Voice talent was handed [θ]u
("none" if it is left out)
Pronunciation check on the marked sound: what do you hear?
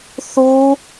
θ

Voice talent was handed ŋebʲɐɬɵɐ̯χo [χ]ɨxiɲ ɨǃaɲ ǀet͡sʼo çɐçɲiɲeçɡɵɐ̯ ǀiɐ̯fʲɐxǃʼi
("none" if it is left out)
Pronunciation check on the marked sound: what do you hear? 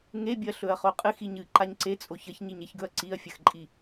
qʼ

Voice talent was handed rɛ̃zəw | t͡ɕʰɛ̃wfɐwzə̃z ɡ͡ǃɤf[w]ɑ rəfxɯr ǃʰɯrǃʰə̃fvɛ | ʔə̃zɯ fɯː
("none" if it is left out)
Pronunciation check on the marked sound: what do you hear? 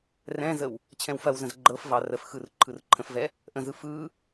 v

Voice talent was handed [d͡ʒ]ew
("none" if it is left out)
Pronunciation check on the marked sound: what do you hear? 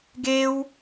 ɡ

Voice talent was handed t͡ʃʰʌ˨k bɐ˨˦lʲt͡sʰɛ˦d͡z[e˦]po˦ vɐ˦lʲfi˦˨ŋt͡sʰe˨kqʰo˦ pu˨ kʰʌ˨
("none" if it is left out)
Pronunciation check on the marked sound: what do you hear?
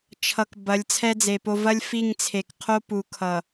e˨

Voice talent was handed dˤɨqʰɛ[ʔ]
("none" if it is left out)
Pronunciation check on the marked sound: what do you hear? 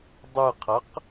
q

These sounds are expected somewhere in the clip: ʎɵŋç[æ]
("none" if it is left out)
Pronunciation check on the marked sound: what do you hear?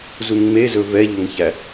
æ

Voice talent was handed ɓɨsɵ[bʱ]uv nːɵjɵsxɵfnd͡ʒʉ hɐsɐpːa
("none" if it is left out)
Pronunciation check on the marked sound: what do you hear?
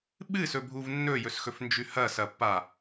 bʱ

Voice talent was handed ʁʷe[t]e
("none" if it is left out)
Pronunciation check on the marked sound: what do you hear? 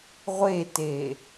t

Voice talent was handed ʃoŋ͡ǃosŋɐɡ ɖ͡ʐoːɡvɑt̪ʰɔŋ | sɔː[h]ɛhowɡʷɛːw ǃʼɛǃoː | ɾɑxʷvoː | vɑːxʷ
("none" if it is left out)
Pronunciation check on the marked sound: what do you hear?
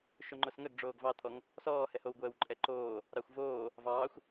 h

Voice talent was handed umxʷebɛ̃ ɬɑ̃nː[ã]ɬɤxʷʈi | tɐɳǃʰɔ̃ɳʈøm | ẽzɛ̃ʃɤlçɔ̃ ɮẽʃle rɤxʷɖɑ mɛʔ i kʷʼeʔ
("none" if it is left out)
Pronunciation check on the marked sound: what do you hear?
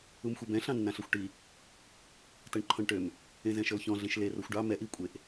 ã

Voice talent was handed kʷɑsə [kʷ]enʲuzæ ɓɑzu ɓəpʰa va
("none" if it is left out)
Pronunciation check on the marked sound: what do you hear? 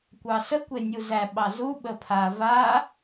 kʷ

